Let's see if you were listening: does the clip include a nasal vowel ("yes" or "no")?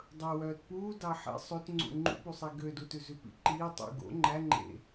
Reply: no